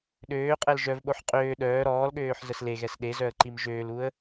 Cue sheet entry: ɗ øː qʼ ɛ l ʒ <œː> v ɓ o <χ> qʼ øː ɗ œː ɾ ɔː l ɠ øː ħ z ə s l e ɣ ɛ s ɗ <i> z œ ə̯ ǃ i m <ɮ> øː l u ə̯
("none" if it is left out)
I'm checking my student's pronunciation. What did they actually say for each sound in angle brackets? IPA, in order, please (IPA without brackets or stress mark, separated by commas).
œ, ħ, e, ʒ